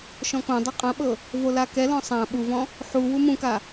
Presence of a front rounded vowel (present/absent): absent